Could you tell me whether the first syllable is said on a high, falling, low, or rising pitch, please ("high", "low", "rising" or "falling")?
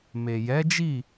low